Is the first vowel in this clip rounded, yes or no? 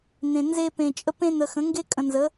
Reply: no